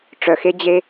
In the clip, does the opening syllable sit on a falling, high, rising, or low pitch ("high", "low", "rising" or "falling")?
low